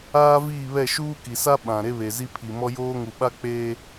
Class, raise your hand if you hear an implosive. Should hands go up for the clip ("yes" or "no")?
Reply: yes